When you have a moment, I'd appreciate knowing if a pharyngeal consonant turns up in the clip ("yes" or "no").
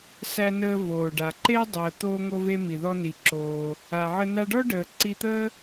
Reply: yes